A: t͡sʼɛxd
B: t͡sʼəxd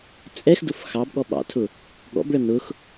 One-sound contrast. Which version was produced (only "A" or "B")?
A